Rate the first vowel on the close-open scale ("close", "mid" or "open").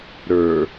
mid